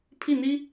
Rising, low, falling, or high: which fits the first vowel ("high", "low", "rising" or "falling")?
falling